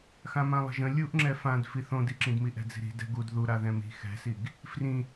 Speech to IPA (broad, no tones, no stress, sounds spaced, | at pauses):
x ã m ã lˠ ə̤ ʒ ə̃ lʲ u ʔ ŋ͡ǁ ɛ f ã d f i θ õ d i ǁ ĩ d m i ʔ ɛ̤ d͡z i̤ ɾ i̤ d ɛ̤ ɡ u d ð u ɾ a ð ɛ̃ m i̤ x ɛ̤ s i ɡ | f r ĩ